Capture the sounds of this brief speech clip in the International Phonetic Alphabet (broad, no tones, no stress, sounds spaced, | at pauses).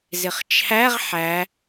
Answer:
z ɪ χ t͡ʃʰ æ ʁ ħ æ